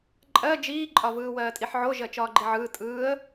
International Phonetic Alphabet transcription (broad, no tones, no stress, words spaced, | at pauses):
ǃʼɜ d͡ʒiːǃʼɒ vɯːwɜːtʼiħʕo ʒɜt͡ʃɒːɡ͡ǃiʕɯː tʼɯːə̯